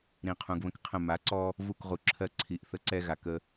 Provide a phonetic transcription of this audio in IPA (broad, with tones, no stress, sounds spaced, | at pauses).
ɾ ĩ˨ qʰ ũ˨ ɡ β ə̃˦ k qʰ ə̃˦˨ m a˨˦ ǀ ɔ˦ | v u˦˨ k ʁ u˨ ǁʰ ɜ˦ ǀʰ i˨ ʔ θ ə˦ ǀ ɛ˦ ɣ a˨ k ə˦